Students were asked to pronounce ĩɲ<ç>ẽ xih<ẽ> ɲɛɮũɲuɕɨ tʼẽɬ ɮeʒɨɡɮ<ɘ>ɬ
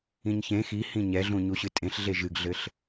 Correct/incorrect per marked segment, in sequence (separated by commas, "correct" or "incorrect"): correct, incorrect, correct